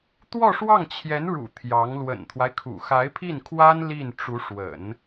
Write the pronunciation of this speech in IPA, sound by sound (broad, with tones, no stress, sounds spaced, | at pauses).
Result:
t̪ w ɔ˥˧ ʂ w ɑ˥˩ ŋ t͡ɕʰ j ɛ˧˥ n ɻ ṵ˨˩ t̪ʰ j ɑ˧˥ ŋ l w ə̰˨˩ n t̪ʰ w a˦ ɪ̯ kʰ ṵ˨˩ x a˧˥ ɪ̯ pʰ i˥˩ n kʰ w a˥ n l i˥˩ n ʈ͡ʂ u˧˥ ʂ w ə̰˨˩˦ n